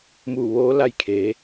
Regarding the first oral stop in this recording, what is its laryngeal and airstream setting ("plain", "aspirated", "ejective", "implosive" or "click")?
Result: aspirated